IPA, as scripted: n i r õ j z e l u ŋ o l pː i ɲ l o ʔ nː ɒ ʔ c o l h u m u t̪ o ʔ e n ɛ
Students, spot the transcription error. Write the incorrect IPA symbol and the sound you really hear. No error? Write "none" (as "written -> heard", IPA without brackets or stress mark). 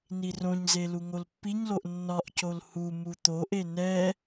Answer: j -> ɲ